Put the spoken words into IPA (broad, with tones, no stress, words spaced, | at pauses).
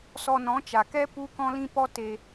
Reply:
sɔ˧nɔ̃˨˦t͡ʃa˨ kɛ˦ pu˦kɔ̃˦lĩ˦ pɔ˦te˧